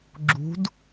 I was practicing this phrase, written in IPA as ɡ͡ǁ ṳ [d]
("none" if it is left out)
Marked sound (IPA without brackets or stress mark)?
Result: d